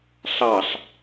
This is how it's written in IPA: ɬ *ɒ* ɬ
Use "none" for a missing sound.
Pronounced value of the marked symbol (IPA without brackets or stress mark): ɑ